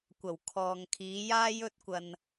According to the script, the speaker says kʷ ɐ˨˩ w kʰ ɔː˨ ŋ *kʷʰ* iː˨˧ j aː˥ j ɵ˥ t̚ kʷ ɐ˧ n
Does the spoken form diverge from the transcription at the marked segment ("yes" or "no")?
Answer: yes